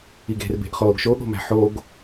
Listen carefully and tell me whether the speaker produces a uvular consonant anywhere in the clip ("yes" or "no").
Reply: yes